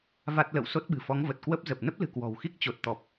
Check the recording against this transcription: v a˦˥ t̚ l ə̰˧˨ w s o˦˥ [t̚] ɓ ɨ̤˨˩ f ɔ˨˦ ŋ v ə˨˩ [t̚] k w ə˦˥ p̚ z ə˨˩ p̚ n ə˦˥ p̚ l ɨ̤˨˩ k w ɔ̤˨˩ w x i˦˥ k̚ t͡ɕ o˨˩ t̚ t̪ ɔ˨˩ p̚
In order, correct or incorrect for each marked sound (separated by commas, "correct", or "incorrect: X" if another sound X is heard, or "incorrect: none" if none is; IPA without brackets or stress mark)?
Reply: correct, correct